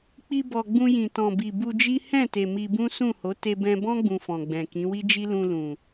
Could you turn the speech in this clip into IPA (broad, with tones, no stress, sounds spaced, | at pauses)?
k͡p i˧ b ɔ˨ ɡ͡b ũ˧ j ĩ˨ t ɔ̃˨ b i˨ b u˧ d͡ʒ i˦ h ɛ̃˦˨ t e˨ m i˧ b ũ˦ s ũ˦˨ h o˨˦ t e˧ b ɛ̃˧ b ɔ̃˦ ɡ͡b ũ˧ f ɔ̃˨ ɡ͡b ɛ̃˨ k ĩ˨˦ w i˦ d͡ʒ i˦ l ũ˧ l ũ˨